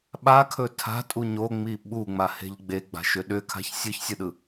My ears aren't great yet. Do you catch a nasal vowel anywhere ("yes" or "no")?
no